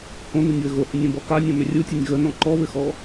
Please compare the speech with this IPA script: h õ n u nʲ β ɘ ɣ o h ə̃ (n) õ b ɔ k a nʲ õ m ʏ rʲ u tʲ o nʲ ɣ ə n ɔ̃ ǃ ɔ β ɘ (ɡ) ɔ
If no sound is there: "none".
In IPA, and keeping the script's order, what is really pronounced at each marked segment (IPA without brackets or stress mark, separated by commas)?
nʲ, x